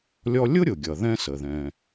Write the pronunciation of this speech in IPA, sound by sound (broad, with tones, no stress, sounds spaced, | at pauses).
lʲ ɔ˥ lʲ ʊ˥ ɾʲ ʊ˩ ɡʲ ʌ˩ ð ɛ̃˥ s ə˩ ð ɛ̃˩